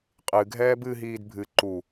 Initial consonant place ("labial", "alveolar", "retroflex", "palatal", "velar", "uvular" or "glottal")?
uvular